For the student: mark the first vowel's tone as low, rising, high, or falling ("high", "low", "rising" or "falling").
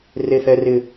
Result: high